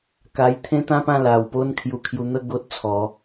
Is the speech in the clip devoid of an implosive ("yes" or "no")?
yes